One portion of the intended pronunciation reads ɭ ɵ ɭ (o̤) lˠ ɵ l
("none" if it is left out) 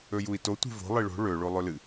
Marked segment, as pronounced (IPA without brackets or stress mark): o